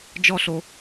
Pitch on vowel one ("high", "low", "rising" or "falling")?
high